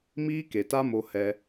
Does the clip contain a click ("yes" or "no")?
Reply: no